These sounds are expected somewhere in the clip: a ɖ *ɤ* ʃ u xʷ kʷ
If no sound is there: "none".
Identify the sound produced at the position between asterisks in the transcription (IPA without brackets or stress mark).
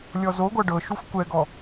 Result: ɤ